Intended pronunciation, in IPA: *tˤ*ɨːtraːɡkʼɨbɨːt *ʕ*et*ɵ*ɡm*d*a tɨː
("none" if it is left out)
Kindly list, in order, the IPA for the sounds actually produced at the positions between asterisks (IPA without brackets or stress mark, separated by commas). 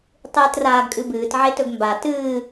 tˤ, ʕ, ɵ, b